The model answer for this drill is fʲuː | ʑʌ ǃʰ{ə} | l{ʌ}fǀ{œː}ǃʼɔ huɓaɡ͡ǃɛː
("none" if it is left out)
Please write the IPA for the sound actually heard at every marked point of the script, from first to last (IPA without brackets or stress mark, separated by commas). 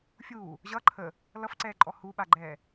ə, ʌ, ɛː